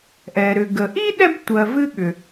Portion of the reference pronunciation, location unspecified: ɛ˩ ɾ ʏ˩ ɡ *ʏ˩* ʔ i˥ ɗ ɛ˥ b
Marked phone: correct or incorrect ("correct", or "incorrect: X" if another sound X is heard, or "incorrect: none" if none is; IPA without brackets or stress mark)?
incorrect: ə˩